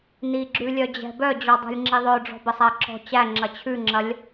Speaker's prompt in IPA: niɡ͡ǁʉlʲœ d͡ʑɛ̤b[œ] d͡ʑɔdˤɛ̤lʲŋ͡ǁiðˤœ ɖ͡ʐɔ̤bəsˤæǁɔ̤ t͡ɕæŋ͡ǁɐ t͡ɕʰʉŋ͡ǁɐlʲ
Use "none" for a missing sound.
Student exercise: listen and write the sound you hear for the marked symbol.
œ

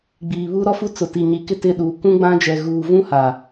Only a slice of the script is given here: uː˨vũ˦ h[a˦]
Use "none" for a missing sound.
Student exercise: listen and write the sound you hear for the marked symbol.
a˨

